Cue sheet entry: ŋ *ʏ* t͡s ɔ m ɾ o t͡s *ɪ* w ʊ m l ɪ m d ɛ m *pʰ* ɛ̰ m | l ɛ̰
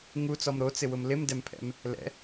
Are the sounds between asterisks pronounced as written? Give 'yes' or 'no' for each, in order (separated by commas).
no, yes, yes